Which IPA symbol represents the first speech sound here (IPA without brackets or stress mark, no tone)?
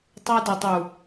tˤ